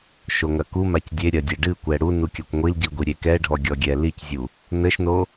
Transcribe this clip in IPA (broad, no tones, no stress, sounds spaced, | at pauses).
ʃ o ŋ ɐ k u m a c dʲ e ɾʲ ɐ dʲ ɛ ɖ ɨ kʷ ɛ ɽ u n u kʲ ɐ kʷ ŋʷ i l ɟ i ɡʷ i ɾʲ e k ɛ ɖʱ ɔ ɡʲ ɔ ɡʲ ɛ l i c zʲ u | n ɘ ʃ n o